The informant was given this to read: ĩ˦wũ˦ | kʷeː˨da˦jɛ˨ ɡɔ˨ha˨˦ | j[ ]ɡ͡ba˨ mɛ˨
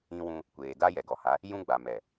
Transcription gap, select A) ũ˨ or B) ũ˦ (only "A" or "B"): B